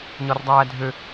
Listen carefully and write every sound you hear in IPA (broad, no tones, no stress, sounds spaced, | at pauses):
ɲ ɒ r dˤ æː dʱ ø